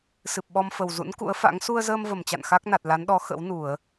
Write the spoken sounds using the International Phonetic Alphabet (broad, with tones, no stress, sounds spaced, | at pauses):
s ɨ˨˩ p̚ ɓ ɔ˧ m f ə˨˩ w z ṵ˧˥ n k ṵ˧˥ ə̯ f a̰˧˥ ŋ s u˧ ə̯ z əː˧ m v ə˧˩ m t͡ɕ a̰˧˨ n x a˦˥ k̚ n a˨˩ t̚ l a˨˦ n ɗ ɔ˨˦ x ə̰˧˥ w n u˧˩˨ ə̯